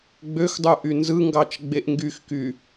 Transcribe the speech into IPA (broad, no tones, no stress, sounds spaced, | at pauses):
ɡ͡b ø x dˤ u ʔ y n z ɯ ŋ ɡ ɑ t͡ʃ ɡ͡b e ʔ ŋ ɡ y x k y